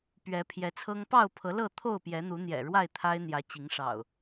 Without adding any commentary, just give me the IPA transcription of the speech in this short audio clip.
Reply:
pɥɛ˨˦pʰjɛ˨˦t͡sʰɤ˦ŋ pɑ˥˨ʊ̯pʰɤ˨˦lɤ˥˨ t̪ʰo˥˨ʊ̯pjɛ˨˦n̪u˨˦n̪jɛ̰˨˩ ɻwa˥˨ɪ̯ t̪ʰa˦ɪ̯ n̪jä˨˦t͡ɕi˨˦ŋʂɑ̰˨˩ʊ̯

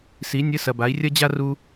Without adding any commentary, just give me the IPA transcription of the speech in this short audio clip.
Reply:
si˩˥ nʲɘ˧˥˧sɐ˨ba˩˥i̯ rʲɐ˥d͡ʑa˥ ru˥

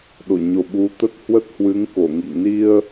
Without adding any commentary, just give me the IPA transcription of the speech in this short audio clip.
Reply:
ɗo˧˩ɲo˨˩ ɓu˨˦t̪ə˦˥t̚ hwə˦˥t̚hwɨ˨˦ŋko˧˩ŋḭ˧˨ŋ ni˧ə̯

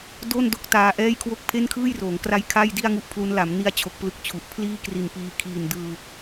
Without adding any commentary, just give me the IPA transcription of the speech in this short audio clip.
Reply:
do˥˩ndo˦˥k̚ taː˧ʔɛː˥˩jkʰwo˥˩k̚ pʰe˥˩nkʰɯː˥˩jroː˩˦ŋkra˦˥j kʰa˥˩j di˥˩a̯ŋu˥˩ʔpʰlu˦˥n la˩˦mni˧a̯t͡ɕʰo˨˩k̚ plɯ˥˩k̚t͡ɕʰu˨˩ʔ pʰliː˥˩ kri˨˩n piː˧ kʰiː˨˩ndɯː˧

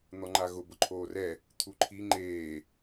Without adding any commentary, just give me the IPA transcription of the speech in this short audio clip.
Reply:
n̪ɔŋ͡ǃaɣʊ bʊǃʰoːrɛ | t̪ʰuǃʰi ŋ͡ǃeː

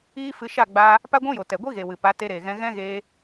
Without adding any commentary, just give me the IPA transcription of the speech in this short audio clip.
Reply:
iː˦fɨ˧ ʃa˦˨ɡ͡baː˧ | pa˦ɡʷũ˦jo˨ tɛ˨ɡʷi˦ɣe˨ wɨ˨pa˨˦ te˧ɾeː˨ɣɛ̃˧ ɣɛ̃˦ɣeː˧

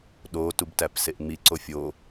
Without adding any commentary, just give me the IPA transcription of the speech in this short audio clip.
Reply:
ɗo tubtæpseʔŋ͡mi ǀofʲo

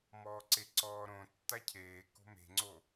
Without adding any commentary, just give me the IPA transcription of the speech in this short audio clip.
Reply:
mɔːǀeǀɔːɾõ tːacʰeː ko̤me̤ŋ͡ǀo

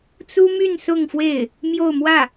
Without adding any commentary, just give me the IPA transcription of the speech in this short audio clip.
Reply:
t͡su˥my˥˧n sʊ˥˧ŋfwe˥˩ɪ̯ | mjo˥˧ʊ̯mwä˥˩

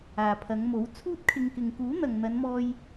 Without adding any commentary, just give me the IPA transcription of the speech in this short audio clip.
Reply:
aː˨pʰɐ˨˧ŋmo˨˥w t͡sʰuː˥t̚kʰɪ˧ŋ kɪ˨ŋkuː˨˥n̪ɐ˨ŋ n̪ɐ˨˧nmɔː˧j

